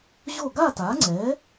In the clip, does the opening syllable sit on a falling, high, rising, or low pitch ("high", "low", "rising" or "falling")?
falling